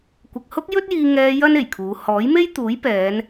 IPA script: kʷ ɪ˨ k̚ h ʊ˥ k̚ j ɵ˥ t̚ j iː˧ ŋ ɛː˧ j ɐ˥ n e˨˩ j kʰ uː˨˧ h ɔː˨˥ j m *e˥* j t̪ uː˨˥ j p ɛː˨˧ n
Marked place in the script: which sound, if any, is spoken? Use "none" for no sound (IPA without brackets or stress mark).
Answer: e˥